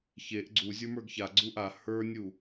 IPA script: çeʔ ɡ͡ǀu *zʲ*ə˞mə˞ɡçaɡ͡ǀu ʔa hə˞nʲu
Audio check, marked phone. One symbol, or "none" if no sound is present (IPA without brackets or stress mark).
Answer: zʲ